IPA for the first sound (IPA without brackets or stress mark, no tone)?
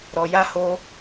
ɾ